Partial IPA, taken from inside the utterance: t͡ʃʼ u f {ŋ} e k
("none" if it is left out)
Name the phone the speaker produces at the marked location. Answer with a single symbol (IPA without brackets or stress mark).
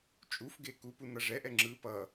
ɡ